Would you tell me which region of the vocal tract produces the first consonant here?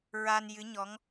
tongue tip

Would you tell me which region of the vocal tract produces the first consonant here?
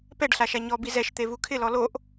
lips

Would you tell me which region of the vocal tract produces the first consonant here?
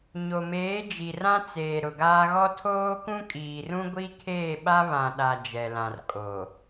palate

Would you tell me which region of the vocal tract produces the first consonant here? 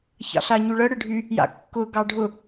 palate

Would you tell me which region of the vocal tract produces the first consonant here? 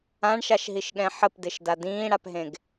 retroflex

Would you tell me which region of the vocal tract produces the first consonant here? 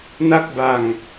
tongue tip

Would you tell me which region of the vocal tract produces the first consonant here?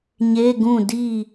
palate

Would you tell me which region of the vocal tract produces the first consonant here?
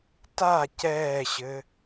tongue tip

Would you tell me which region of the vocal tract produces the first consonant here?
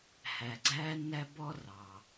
throat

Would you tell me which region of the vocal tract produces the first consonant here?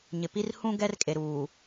palate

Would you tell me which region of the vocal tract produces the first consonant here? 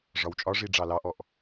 retroflex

